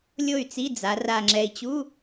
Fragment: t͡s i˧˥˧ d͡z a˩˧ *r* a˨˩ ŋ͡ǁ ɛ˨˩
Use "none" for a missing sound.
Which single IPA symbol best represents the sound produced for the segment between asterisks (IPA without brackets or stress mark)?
r